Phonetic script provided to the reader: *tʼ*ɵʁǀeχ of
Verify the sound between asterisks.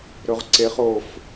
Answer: incorrect: ɾ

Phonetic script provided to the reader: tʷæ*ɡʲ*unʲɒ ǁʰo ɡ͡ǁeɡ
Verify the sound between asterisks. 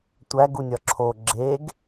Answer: incorrect: ɡ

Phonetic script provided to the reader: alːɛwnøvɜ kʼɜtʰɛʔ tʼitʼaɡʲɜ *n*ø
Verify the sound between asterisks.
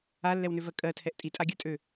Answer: incorrect: tʼ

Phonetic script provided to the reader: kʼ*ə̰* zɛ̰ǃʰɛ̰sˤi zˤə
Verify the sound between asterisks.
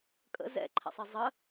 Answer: correct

